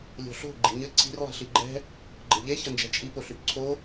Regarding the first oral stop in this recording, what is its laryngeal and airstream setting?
click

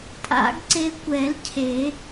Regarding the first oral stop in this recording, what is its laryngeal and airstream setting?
ejective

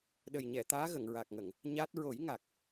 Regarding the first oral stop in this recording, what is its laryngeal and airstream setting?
implosive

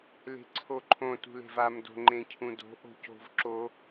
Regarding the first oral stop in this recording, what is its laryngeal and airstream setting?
click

